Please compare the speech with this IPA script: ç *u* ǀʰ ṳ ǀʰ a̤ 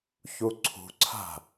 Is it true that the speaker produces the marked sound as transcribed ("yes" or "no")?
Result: yes